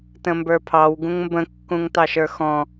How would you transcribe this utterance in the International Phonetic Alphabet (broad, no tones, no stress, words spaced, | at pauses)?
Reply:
tə̃mbə˞pʰɑw ɡũŋmbə̃ kːũŋtɑʃə˞xɔ̃